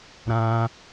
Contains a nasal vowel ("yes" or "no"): yes